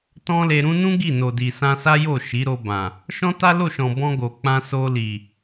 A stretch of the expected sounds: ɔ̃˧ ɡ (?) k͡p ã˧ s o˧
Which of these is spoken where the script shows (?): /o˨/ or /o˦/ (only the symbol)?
o˨